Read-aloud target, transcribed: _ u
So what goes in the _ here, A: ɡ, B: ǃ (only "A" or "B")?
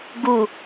A